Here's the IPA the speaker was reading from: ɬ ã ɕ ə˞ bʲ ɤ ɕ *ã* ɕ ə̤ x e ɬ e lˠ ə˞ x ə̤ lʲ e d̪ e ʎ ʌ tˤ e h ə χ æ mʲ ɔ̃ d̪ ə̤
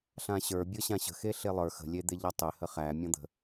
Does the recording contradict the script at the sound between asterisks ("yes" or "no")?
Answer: no